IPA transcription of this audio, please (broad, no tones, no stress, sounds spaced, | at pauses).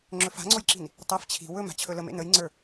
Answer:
ŋ͡ǁ ɵ f a̤ ŋ͡ǀ o j ǁ i̤ n | tˤ ɛ f t͡ɕʰ i̤ w ɵ m a̤ t͡ɕʰ ɵ l ə m ḛ n ə j ŋ͡ǀ ə˞